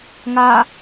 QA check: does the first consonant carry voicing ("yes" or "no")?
yes